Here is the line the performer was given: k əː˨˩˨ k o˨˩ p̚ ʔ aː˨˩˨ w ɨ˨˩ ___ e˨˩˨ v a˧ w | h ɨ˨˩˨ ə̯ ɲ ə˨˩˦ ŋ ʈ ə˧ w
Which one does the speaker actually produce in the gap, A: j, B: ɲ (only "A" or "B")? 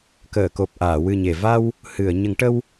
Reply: B